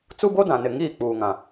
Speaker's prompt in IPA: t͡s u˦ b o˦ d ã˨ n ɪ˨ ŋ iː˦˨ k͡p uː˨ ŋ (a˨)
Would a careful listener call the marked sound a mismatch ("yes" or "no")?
yes